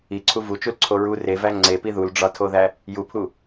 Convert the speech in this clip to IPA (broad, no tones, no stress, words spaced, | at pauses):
iǀʰu vut͡ʃulǀʰo ɹu revæ ŋ͡ǀepi ðulɖ͡ʐɒtʰoðæ | jupʰu